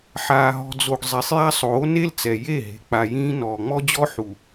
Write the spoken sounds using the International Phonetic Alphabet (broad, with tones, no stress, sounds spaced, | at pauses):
ħ aː˨ ɦ ɔ̤˨ d͡z o˨ ɡ zˤ e˨ sˤ j a˦ sˤ oː˨˦ n e˦ l t͡s ɛ˨ j e˦˨ ɦ e̤˨ k͡p a˨ j ĩː˦ n ɔː˨ ŋ͡m ɔ˦ d͡ʑ ɔ˦ ħ u˨